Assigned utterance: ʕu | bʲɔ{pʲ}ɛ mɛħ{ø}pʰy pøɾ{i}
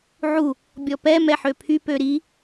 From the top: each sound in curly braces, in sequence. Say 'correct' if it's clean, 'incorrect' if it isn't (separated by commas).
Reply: incorrect, correct, correct